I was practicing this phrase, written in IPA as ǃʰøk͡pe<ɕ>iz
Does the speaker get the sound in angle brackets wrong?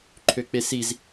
yes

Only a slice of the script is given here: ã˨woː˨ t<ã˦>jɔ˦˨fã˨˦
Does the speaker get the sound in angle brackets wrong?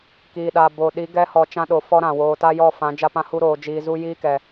yes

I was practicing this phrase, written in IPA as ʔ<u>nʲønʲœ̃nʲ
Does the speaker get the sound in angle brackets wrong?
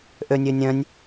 yes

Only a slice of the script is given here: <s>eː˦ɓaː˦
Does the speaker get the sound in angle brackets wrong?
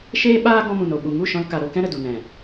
yes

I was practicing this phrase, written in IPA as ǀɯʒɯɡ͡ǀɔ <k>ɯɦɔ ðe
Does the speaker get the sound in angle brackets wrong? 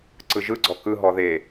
no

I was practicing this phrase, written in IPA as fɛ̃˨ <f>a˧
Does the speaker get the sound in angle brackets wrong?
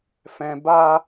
yes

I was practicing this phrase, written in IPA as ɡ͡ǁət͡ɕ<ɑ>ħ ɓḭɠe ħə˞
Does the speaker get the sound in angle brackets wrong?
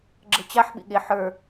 yes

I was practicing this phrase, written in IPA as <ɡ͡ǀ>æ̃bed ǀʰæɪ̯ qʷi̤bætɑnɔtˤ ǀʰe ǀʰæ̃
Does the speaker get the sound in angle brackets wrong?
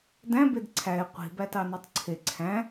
yes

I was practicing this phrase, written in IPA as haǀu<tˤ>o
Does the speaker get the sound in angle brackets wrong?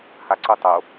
no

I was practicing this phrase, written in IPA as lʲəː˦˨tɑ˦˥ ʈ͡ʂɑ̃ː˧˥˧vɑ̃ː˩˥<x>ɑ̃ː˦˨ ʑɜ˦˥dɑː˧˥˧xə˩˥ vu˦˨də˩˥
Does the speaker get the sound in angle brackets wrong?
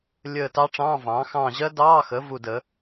no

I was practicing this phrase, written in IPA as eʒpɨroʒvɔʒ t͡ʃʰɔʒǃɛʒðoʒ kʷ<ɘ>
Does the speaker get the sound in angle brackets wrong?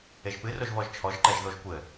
no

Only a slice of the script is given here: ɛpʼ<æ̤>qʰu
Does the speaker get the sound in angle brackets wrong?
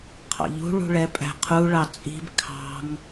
no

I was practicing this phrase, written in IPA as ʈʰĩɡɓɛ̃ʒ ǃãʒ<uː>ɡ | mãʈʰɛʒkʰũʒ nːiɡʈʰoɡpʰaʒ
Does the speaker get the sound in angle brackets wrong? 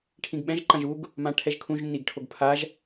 yes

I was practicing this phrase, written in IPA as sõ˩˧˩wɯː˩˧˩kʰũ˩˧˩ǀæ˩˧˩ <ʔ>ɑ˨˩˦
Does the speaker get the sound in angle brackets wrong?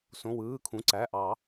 no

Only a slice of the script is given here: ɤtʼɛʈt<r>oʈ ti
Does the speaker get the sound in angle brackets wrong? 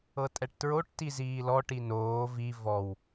yes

